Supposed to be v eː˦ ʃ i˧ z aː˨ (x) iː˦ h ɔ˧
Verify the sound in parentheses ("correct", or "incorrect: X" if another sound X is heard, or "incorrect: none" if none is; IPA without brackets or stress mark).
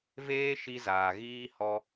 incorrect: ɣ